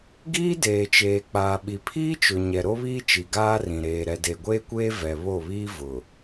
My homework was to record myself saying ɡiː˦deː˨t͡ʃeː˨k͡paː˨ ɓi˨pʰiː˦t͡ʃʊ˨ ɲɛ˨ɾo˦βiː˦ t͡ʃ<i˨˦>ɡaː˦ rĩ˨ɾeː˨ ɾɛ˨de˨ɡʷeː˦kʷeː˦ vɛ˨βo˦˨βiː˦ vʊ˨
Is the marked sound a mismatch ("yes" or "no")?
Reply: yes